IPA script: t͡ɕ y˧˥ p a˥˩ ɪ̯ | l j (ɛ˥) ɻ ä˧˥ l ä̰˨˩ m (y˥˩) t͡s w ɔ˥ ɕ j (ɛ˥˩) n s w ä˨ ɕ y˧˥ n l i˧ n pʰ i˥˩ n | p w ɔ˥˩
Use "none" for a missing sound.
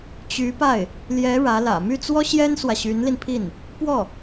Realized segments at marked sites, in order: ɛ˧˥, y˥˩, ɛ˥

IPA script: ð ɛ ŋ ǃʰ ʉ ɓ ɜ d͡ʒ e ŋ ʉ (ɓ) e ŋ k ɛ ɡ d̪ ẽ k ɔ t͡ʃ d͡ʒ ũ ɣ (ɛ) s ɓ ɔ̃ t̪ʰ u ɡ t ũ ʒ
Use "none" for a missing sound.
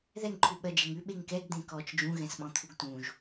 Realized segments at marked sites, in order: ɓ, ɛ̃

